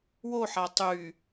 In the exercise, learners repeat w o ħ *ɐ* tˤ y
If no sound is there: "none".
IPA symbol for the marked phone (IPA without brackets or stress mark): a